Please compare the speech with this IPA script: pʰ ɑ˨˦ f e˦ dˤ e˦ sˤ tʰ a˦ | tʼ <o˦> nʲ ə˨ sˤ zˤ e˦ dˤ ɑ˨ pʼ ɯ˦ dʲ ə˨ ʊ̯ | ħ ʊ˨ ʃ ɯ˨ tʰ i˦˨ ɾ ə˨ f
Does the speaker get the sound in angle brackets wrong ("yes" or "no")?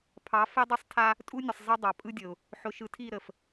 yes